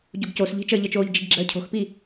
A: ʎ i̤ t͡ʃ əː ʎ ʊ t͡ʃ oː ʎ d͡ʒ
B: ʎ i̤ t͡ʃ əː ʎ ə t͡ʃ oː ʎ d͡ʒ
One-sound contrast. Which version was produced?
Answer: B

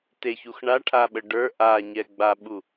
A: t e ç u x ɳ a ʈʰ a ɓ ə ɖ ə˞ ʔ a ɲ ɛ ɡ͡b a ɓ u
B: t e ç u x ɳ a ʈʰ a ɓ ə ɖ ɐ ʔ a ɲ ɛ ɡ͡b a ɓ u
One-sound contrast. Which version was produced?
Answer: A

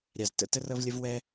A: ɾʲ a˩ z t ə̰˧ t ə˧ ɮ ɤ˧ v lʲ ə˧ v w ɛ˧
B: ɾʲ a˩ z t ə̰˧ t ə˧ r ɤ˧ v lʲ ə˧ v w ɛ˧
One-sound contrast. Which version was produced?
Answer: B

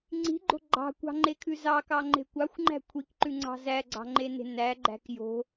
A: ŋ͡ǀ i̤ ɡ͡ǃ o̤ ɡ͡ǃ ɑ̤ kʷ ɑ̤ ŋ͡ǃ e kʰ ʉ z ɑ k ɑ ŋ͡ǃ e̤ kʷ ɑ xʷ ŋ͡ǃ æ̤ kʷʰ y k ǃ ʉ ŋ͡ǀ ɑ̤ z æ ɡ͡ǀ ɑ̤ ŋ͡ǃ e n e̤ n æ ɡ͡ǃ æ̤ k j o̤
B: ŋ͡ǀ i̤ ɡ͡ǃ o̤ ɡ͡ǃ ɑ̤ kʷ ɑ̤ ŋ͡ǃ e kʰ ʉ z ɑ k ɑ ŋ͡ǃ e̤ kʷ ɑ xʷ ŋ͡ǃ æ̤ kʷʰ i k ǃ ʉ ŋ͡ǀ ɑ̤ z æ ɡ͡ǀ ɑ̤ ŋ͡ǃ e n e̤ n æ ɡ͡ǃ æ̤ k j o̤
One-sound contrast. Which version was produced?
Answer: B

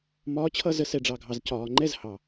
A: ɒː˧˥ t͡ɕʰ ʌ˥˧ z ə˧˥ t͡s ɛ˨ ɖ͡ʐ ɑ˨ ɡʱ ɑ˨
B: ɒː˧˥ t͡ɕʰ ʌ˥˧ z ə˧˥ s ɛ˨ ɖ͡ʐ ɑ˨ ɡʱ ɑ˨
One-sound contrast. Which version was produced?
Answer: B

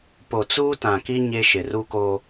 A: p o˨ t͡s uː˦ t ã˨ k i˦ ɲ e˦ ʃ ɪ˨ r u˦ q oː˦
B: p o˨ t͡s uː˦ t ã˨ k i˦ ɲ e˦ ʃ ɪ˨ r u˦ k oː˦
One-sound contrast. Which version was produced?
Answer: B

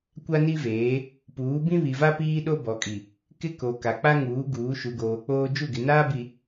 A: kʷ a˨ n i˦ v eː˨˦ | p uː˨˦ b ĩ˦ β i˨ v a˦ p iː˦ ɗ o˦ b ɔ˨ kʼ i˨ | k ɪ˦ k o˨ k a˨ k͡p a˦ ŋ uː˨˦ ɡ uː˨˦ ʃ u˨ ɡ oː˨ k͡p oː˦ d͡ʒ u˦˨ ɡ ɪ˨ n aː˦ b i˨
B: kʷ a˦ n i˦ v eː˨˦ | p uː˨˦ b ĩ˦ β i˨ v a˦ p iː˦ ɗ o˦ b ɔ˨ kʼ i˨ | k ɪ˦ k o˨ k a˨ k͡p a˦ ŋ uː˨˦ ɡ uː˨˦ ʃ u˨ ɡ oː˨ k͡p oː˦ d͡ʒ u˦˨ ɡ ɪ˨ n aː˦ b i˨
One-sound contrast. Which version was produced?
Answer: B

